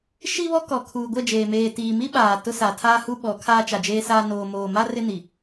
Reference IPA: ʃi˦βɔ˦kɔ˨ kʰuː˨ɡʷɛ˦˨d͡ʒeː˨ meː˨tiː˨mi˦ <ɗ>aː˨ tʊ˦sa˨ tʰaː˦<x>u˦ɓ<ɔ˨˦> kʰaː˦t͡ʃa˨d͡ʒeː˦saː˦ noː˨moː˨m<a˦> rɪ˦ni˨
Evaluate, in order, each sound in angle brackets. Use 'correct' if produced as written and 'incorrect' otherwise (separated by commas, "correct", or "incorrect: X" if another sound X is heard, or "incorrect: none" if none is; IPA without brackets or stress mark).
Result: incorrect: ɓ, incorrect: h, correct, correct